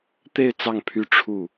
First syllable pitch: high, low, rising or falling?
falling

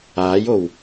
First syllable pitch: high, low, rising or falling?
rising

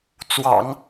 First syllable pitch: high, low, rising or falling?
low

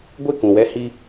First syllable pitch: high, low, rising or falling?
falling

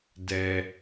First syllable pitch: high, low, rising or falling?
high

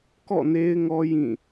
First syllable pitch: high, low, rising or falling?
falling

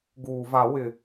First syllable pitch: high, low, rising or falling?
low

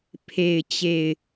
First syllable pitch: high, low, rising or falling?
low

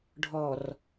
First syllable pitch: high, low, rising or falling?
low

